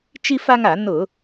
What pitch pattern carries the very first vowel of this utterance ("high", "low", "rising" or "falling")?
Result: high